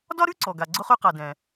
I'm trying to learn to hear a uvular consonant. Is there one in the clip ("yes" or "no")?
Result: yes